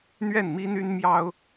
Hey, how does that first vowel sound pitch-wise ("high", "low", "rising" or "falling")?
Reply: falling